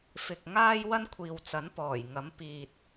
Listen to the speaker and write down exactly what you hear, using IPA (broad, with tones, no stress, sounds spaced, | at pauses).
f ɪ˨ k̚ ŋ aː˥ j w ɐ˥ n kʷʰ iː˨ w t͡s ɐ˨˥ n p ɔː˨˩ j ŋ ɐ˨˥ m p iː˨ t̚